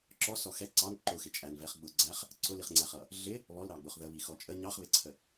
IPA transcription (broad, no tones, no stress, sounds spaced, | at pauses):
ǁ ɔ s ɔ x ɛ ǀ ɑ n ǃ ʊ x ɪ t͡ʃʼ æ n v ɛ χ ɡ͡b ʊ ɡ͡ǀ æ χ | ǀ ʊ l i χ ŋ͡ǀ æ χ ʌ | ɮ ɪ | β ɔ l ɾ ɑ ɡ͡b ʊ χ ð ə β i x ɔ t͡ʃʼ ə ɲ ɑ χ β ɪ ǀʰ ə